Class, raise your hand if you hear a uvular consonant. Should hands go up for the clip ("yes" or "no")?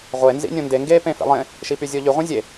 yes